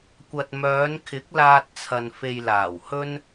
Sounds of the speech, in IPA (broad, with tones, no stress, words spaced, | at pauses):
kʷɐ˨t̚mœː˨˧nkʰɪ˨˥k̚laː˧t̚ t͡sʰɐ˨n fe˧jlaː˨˩whɵ˥n